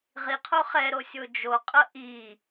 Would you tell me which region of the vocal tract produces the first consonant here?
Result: uvula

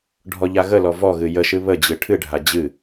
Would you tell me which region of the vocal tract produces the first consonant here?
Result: retroflex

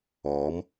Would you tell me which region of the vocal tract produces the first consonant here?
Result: lips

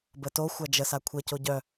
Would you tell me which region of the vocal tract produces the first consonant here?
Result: lips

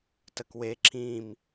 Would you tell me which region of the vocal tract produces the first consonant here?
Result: tongue tip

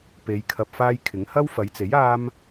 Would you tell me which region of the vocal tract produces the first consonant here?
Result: lips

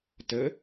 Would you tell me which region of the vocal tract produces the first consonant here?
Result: tongue tip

